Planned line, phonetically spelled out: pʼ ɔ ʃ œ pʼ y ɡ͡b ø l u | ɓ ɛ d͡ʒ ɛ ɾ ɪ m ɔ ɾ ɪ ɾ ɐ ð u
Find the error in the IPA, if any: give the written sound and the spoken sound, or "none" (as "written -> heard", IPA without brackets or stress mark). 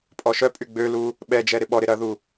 m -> ɓ